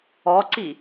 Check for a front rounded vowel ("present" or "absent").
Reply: absent